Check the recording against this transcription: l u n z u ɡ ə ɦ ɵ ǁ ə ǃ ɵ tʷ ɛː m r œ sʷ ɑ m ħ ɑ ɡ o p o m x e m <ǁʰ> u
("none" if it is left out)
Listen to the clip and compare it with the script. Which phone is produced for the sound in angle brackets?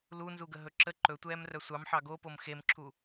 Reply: ǁʰ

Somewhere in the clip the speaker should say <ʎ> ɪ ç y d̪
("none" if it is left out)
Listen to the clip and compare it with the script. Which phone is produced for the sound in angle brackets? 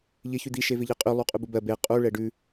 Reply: ʎ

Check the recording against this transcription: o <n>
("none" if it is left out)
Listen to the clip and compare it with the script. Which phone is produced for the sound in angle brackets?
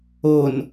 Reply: n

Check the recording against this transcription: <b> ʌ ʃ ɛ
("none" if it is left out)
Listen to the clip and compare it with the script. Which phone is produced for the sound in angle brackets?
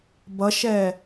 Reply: b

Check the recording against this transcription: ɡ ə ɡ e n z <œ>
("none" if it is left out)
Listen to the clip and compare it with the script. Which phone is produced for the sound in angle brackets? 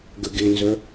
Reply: œ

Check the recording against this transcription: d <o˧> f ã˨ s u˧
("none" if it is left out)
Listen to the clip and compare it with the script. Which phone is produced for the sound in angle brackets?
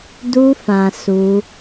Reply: u˧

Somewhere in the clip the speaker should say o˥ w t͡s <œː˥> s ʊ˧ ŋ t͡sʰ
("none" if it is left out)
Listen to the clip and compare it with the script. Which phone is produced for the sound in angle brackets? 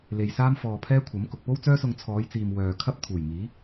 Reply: œː˥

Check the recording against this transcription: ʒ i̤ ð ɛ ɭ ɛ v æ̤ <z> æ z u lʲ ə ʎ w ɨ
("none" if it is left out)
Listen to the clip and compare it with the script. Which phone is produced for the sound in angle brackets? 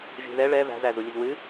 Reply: z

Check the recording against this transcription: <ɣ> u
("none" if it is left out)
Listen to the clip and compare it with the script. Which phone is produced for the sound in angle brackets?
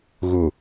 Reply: ɣ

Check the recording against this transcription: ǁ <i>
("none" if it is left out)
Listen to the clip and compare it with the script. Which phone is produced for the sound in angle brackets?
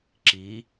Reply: i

